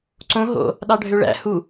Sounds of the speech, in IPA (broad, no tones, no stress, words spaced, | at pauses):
ǀõ ɦo̰ | ɗɑɖʱøɭæ̰ hu